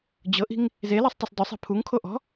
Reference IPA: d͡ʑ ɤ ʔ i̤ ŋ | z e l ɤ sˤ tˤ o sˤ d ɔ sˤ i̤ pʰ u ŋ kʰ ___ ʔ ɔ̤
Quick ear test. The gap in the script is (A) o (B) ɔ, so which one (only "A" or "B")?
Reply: A